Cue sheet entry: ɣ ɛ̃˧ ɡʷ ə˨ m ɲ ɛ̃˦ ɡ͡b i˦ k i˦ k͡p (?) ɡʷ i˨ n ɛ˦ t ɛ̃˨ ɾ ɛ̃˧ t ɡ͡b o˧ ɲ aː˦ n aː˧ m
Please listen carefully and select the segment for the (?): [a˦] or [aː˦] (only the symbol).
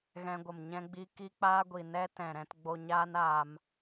aː˦